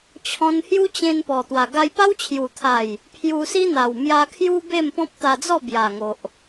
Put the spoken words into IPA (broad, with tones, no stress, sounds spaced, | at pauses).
t͡ɕʰ ɔ̃˧ n h j u˦ t͡ɕ ẽ˧ n p ɔ˨˩ t̪ w a˨˩ ɡ a˧ j p a˦ w t͡ɕʰ j u˨˩ t̪ʰ a˨˩ j | pʰ j u˧ s i˦ n̪ a˨˩ w m j a˧ kʰ j u˦ b e˥˧ m p ɔ̃˦ p̚ t̪ a˧ d͡z ɔ˥˧ b j a˨˩ ŋ o˨ ʔ